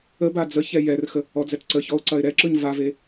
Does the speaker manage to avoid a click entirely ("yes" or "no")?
no